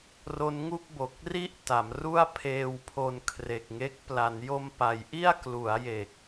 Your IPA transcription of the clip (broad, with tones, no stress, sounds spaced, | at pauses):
r o˦˥ n ŋ u˥˩ k̚ b o˨˩ k̚ r i˥˩ ʔ t a˩˦ m r u˥˩ a̯ pʰ eː˧ w pʰ o˧ n kʰ r e˨˩ k̚ ŋ e˦˥ k̚ p l a˩˦ n j o˧ m p a˩˦ j ʔ i˥˩ a̯ k l u˩˦ a̯ j e˨˩ k̚